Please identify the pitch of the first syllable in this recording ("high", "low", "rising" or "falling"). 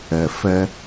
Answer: low